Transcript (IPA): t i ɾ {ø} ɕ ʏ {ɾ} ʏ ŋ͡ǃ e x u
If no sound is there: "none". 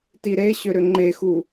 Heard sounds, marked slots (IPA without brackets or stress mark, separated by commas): e, ɾ